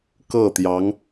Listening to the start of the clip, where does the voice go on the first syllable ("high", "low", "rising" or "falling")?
falling